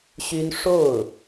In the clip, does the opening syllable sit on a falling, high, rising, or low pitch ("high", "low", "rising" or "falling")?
high